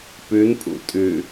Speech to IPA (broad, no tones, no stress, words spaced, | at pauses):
pʉnpʼṵ tʼʉ